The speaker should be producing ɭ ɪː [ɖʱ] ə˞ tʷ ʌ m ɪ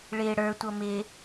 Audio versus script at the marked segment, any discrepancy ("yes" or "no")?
yes